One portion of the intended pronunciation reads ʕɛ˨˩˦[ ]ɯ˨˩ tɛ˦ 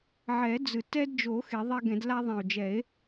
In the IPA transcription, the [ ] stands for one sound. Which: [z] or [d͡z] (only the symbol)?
d͡z